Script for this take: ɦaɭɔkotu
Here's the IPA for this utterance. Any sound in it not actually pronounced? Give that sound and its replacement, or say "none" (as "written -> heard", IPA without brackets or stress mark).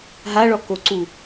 t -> ǀ